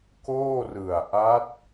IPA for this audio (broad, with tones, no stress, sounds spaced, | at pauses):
k oː˥˩ r ɯ˨˩ a̯ ʔ a˦˥ t̚